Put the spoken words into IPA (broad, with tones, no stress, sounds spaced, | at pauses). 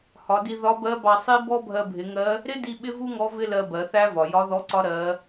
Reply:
h ɒ˩˧ d i˧ ð ɒ˧˥ b ɜ˧˥ b ɑ˧ sˤ i˥ b ɔ˥ bʱ ɜ˧ bʱ ɪ˩˧ ŋ ɜ˧˥ | ɾ ɪ˥ d i˧ ɓ ɪ˥ v u˥ ŋ ɔ˧˥ v ɪ˥ l ɜ˧ b ɜ˩˧ θ æ˥ v ɒ˩ j ɒ˧˥ ð ɔ˧˥ ǀ ɒ˧˥ ɾ ɜ˩˧